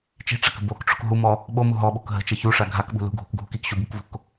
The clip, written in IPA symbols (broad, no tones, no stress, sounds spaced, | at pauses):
t͡ʃ i̤ ʈ͡ʂ a k ə̤ b o k ʈ͡ʂ o̤ k ɦ u m ɔ | ɓ o m u ɦ ɔ ɓ o̤ k ɦ ə̤ t͡ʃ ə ç u ʂ a ɡʱ a k ɓ ṳ l ṳ ɡʱ o̤ k ɡʱ u k i k ɕ u b u k v o̤ k